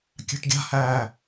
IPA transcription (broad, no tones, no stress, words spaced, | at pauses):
kʲa̤ʈɡʲa̤hæː